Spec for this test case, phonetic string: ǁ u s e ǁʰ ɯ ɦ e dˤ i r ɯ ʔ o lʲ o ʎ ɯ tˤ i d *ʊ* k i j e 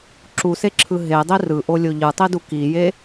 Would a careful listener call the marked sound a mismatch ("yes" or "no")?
yes